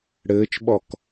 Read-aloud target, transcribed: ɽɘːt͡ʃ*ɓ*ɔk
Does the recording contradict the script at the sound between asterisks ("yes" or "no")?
no